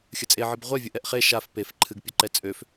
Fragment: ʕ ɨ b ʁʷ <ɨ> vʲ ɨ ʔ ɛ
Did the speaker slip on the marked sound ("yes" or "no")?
yes